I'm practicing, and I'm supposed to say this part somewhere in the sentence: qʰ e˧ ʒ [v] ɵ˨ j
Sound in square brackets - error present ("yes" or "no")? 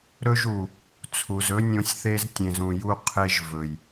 no